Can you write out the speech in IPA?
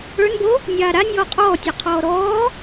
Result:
ə˞ n b o | nʲ aː ɾ a nʲ ɔː qʼ ɔː tʲ ɔ qʰ ɔː ɾ ɔː

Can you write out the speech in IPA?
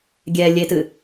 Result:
ɡʲ ɛ lʲ e t ɨ

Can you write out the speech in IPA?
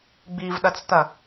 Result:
ɡ͡b i v ɗ ɐ t͡s t̪ ɐ

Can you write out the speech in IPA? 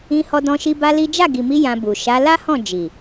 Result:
ĩ˧ h ɔ˧ d ɔ̃˧ ʃ i˧ b a˦ l i˦ d͡ʒ a˦˨ ɡ i˨ m i˧ j ã˧ b u˨ ʃ a˨˦ l a˦ h ɔ̃˦˨ d͡ʒ i˨

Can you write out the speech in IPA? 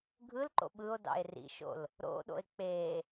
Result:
ɡʱ ɯ l ǃ o̰ ɓ ɯ o̯ d ɑ̰ e̯ r ḭ ʃ o̰ l | ɾ o̰ ɗ o̰ e̯ k͡p e

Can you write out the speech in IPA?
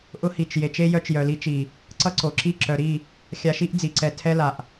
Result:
ʔ ʊ˧ h i˨ t͡ʃ j e˨ t͡ʃ e˦ j œ˧ t͡ʃ j œ˨ l i˧ t͡ʃ i˨ | ǀ ʌ˦ ǀ o˨ ǁ i˦˨ ǁ œ˨ ɾ i˦˨ | xʲ a˧ ʃ i˦ ʔ d͡z i˨ ǀ ɛ˧ tʰ ɛ˦ l a˨ ʔ

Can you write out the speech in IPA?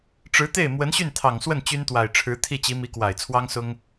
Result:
ʈ͡ʂ ɻ̩˧˥ t̪ e˥˩ ɪ̯ m w ə˧˥ n ɕ y˥˩ n t̪ʰ ɑ˨˩ ŋ s w ə˥˩ n t͡ɕ y˥ n t̪ w a˨˩ ɪ̯ ʈ͡ʂʰ ɻ̩˧˥ t̪ʰ i˥˩ t͡ɕ i˧˥ m i˧˥ k w a˨˩ ɪ̯ t͡sʰ w ɑ˥ ŋ s ʊ˥ ŋ

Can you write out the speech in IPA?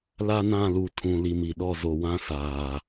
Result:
l a˦ n ã˦˨ l u˨ tʰ ũ˨ l i˨ m i˨ ɗ ɔ˦˨ z o˨ w ã˦ s aː˨

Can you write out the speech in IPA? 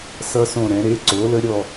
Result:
s ʌ˦˥ s õ˦˨ ɾ ɛ̃˩˧ ɾ e˩˧˩ ǀ o˩˥ l ə˦˥ ɾʲ ɔ˦˨

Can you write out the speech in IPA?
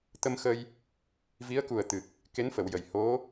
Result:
t̪ ə˧ m x ə˧ j | v i˧˥ ə̯ k u˨˩ ə̯ t̪ ɨ˨˩ k̚ | k e˧˥ n f ə˨˩˨ w j ə˨˩˨ j h o˧˥

